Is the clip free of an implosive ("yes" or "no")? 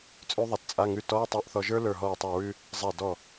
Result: yes